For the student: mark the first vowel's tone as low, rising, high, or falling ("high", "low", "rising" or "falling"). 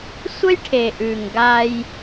high